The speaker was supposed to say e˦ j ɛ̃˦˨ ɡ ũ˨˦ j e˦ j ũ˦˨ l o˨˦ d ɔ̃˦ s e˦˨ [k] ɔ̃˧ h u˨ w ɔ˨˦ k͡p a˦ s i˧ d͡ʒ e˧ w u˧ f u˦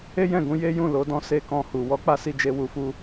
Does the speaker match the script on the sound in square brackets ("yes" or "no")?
yes